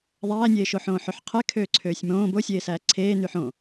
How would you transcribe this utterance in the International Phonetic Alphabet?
ðˤ æː nʲ eː ʃ o ħ õː ħ ø ħ qʰ e kʰ øː ǀʰ øː sʲ m õː b o sʲ eː s æː ǀʰ eː n y ħ õ

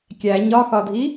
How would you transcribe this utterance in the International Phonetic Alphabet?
kʲ æ ɲ ɒ x ɒ dʱ i

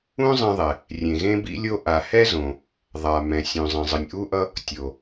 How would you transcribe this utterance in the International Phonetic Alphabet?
ũ˥ zˤ ɛ̃˥ ðˤ ɛ˩ | rʲ ẽ˩ ɣ ẽ˥ b ḭ˥ lʲ o˥ ʔ a˩ h ɛ˥ z õ˩ | ðˤ a˩ m ɛ̃˩ sʲ ũ˩ zˤ ɛ̃˩ zˤ ɯ˩ nʲ ʔ u˥ ʔ ʌ˥ | tʲ o˩

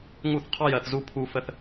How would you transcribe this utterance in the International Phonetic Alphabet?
ŋ u˦˨ θ qʰ ɑ˦ j ɜ˧ θ z u˦ pʰ u˦ f ə˦ θ

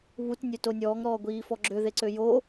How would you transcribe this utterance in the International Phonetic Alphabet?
β u t nʲ ø t o nʲ ɔː ŋ ɾ ɔː ɡʷ iː f ɔ ɡ͡ǁ ø ð e ǀ ø j o

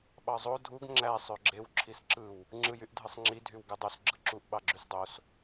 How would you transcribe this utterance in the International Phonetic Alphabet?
ɓ ɑ zˤ o dʱ u ɡ ŋ͡ǁ æ sˤ ø ɡ͡ǁ e w ǁʰ i s ǁ ɯ w | ŋ͡ǁ ɯ j y ʔ dʱ ɯ sˤ ŋ͡ǁ i dʱ y w ɡ ɯ dˤ o s ɡ͡ǁ ɯ ǁ u ʔ ɓ ɑ ɡ͡ǁ y s dˤ o s

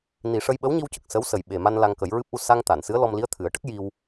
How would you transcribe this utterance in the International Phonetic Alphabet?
n i˨˩ ʂ ə˧ j ɓ ə˧˥ w ɲ i˧ w c ə˨˩ k̚ s ə˧˥ w s ə˨˩ j ɓ e˨˩ m a˧ n l a˧ ŋ k ə˨˩˦ j ɹ ɨ˦˥ p̚ ʔ u˧ s a˧ ŋ t̪ a˨˩˨ n s ɨ˧˥ ə̯ l ɔ˧ m l i˧˥ ə̯ t̪ʰ ɨ˨˩˦ ə̯ ʈ ə˦˥ k̚ j i˧ w

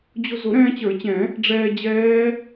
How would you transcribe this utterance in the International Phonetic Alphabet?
d͡ʑ ʊ˧ z ʊ˨˩˦ ɾ ɛ̃ː˧ t͡ɕ ə˞˨˩˦ t͡ɕ ɛ̃˨˩˦ | ɖ͡ʐ ɛː˧ d͡ʑ ɛː˦˥

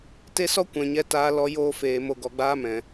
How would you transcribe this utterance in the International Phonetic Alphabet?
t e˦ s ɔ˦ kʷ ɛ̃˨ ɲ ɛ˧ t aː˧ l ɔ˧ j oː˧ f eː˨ m o˧ ɡ ɔ˨ ɡ͡b aː˦ m ɛ̃˨

